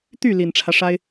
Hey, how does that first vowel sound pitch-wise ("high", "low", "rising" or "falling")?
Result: falling